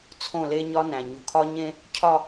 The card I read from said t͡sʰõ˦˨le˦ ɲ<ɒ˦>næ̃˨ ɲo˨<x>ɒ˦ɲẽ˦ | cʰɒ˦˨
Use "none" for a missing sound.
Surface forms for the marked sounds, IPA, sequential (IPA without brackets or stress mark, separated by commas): ɒ˦, kʰ